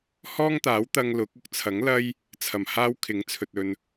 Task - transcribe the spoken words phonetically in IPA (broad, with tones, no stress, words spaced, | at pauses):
hɔː˥ŋt̪aː˨˥wt̪ɐ˧ŋ lʊ˨˥k̚ ʊ˧k̚t͡sʰɐ˨˥ŋ lɐ˥j | t͡sʰɐ˨˩mhaː˧w kʰɪ˨˥ŋt͡sʰɵ˨t̚ ɵ˨n